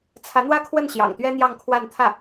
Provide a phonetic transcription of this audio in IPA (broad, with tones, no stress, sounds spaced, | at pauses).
t͡sʰ ä˧˥ n̪ w ä˥˧ kʰ w ə˥˩ n ɕ j ɑ̰˨˩ ŋ t̪ ɥ ɛ˥ n̪ j ɑ˥˧ ŋ kʰ w a˥˧ n t̪ʰ ä˥˩